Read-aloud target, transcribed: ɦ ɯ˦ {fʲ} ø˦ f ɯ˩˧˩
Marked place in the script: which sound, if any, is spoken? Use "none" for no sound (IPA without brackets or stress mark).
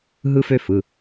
f